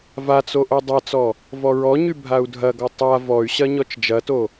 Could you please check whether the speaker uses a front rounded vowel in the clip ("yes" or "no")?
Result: yes